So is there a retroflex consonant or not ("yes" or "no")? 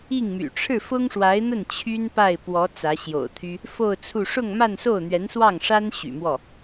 yes